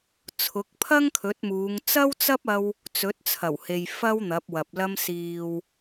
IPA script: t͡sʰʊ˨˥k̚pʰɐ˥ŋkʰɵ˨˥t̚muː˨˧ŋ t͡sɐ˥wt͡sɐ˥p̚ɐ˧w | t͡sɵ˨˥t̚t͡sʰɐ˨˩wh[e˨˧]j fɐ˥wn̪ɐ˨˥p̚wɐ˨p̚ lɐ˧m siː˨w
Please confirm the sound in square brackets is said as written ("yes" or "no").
no